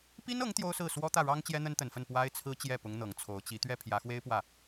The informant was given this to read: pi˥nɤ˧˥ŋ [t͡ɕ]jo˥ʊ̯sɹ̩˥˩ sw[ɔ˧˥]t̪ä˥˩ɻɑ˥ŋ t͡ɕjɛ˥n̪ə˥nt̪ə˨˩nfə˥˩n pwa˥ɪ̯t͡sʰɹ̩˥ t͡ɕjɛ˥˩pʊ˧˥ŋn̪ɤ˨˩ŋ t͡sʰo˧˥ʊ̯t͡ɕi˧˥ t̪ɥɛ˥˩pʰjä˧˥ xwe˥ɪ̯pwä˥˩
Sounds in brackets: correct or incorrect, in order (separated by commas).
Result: incorrect, incorrect